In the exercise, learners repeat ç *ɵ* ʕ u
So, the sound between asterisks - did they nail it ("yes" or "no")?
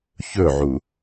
yes